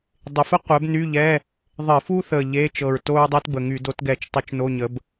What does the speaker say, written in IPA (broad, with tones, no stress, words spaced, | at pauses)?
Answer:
dˤɪ˨˩fə˥ qʷɛ˨˥bny˧˥˧ʎɛ˧˥˧ | ðˤɪ˧˩˧fu˥θə˨˩ ʎe˧˥˧t͡ʃɤ˨˩ɹto˥ɹ dˤɛ˥tbə˨˩ŋy˧˩˧ do˨˥tɡɛ˧˩˧t͡ʃ tˤu˧˩˧t͡ʃno˧˥˧ɲə˨˥b